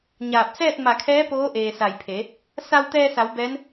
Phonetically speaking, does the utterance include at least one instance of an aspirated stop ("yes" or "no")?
yes